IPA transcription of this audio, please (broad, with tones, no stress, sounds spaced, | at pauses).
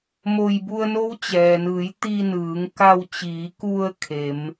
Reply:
m o˧ j b u˧ ə̯ n o˧˥ w t͡ɕ ɛː˩ n ɯː˩˧ j t̪ i˧ n ɯː˩˧ ŋ k a˧ w t͡ɕ iː˩˧ k u˧ ə̯ kʰ e˩˧ m